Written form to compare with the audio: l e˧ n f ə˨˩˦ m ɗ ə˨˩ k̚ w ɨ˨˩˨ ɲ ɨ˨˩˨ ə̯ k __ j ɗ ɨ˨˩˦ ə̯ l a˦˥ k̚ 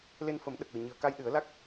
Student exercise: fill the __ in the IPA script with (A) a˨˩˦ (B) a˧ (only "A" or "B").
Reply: B